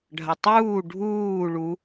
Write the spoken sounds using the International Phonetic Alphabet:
ɖʱ ɐ tˤ uː ɖʱ uː ɭ u

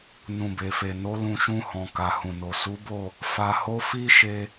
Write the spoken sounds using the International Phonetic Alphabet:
n ũ˨ b e˨ f e˨ n o˨˦ l ũ˧ ʃ ũ˧ h ɔ̃˨ k a˨ h ũ˨ n o˨ s u˨˦ b o˦˨ | f a˧ h o˦ f i˦ ʃ e˧

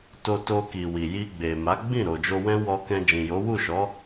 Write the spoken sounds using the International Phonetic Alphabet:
t o˧ t o˧ k i˨ w i˨ j i˧ ɡ͡b e˨ m a˨˦ ɡ͡b ĩ˦˨ ɾ o˨ d͡ʒ o˧ w ɛ̃˦ w ɔ˧ k ɛ̃˧ d͡ʒ ĩ˨ j o˨˦ w u˦˨ ʃ ɔ˨˦

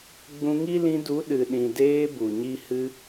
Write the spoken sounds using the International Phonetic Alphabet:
ɡ͡b ũ˧ ŋ i˦ l ĩ˧ d u˨˦ ɗ ɨ˨ ɗ ĩ˨ d eː˧ b u˨ ɲ i˦ h ɨ˧

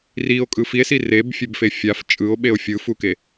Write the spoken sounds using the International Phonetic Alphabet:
r i o̯ kʼ ɯ f i e̯ s i r e b fʲ e b f e fʲ a f t͡ʃʼ ɯ o̯ ɓ e o̯ fʲ ɯ f u k e

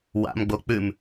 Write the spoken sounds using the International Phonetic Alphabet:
w a̰ m ɡ͡b o k͡p ʉ m

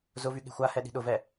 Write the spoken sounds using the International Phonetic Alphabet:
z ʊ v y ɠ e̤ xʷ a h ɛ ɗ i̤ ɗ ʊ v ɛ

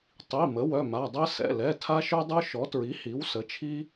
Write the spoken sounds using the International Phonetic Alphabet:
tˤ i˩˧˩ m ə˩˥ w œ˩˧˩ m a˩˧˩ dˤ ɛ˦ s ɛ̰˩˧˩ l ɛ˩˧˩ tʰ a˦ ʃ œ˦ dˤ œ˦ ʃ ɔ˩˥ t ɹ i˩˥ h i˩˥ w s ə˩˥ t͡ʃʰ i˦

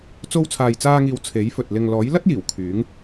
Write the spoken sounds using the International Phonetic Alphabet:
t͡s o˧ w t͡sʰ aː˨ j t͡s aː˧ ŋ iː˨ w t͡sʰ e˨˥ j f ɵ˨ t̚ l ɪ˨ ŋ l ɔː˨˥ j l ɐ˥ t̚ j iː˨˩ w kʰ yː˨˥ ŋ

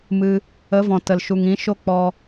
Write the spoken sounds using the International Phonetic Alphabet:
m ɨ˧ | ə˨˦ v ɔ̃˨ t ə˨ l ʃ u˨ ŋ ĩ˨˦ ʃ o˦ k͡p ɔ˧

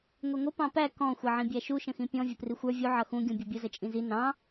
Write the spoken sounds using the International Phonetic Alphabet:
ŋʷ i ŋʷ ə p ɑ̃ p æ k ɔ̃ xʷ ɛ ʕ ĩ bʲ æ ʃ u ʃ ə̃ x ĩ pʲ ɔ̃ vʲ ʊ p r i xʷ ə˞ vʲ u ʕ ʌ x ũ ɡʲ ũ bʲ ʌ bʲ ʊ z ə t͡ʃʼ ĩ z i n ɑ̃

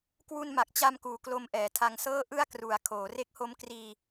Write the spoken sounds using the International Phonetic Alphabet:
k w u˧ n m a˨˩ k̚ t͡ɕ a˧ m k uː˩˦ k l o˧ m ʔ ɛː˩˦ tʰ a˧ ŋ s ɤː˥˩ ʔ ɯ˥˩ a̯ k r u˨˩ a̯ kʰ oː˩˦ r e˦˥ k̚ h o˦˥ m k r iː˧

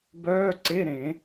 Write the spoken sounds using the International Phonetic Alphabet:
b œː˧˥˧ ǀ e˧˥˧ ɾ ẽ˨˩˦

